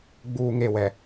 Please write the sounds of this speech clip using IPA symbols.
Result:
ɡ͡b uː˨ ŋ e˨ w ɛ˨

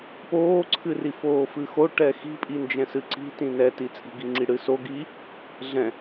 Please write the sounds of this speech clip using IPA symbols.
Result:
p oː ǀʰ ɨ r i f oː f ɨ x o ʈ ɛ x i̤ pʼ i n d͡ʒ ɛ̃ s ɨ ǀ i̤ t ĩ n ɛ t i t͡sʼ i̤ ɡ i ŋ͡ǀ i ɽ ɨ s o ɡ i | ɮ ɛ̃

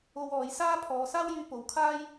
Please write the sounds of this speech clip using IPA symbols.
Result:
o˧ w ɔː˨˧ j s aː˥ pʰ ɔː˨˧ s aː˥ w j yː˧ p o˨ w kʰ aː˥ j

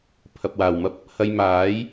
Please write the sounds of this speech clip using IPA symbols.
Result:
pʰ ɐ˨ p̚ w aː˨˩ w m ɐ˥ p̚ | h ɐ˧ j m aː˨˥ j

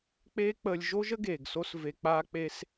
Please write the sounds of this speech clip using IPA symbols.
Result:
k͡p eː˦ k͡p əː˧ lʲ ʒ o˦ ʒ ə˦ ɡ eː˨ ɡ s o˧ s v e˧ k͡p aː˦ k͡p e˦ s

